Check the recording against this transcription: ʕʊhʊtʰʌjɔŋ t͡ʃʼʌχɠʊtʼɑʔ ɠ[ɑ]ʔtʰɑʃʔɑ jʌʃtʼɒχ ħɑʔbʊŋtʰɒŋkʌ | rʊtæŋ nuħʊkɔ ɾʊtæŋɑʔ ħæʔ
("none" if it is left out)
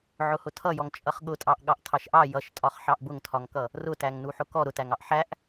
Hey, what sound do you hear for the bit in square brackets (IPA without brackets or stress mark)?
ɑ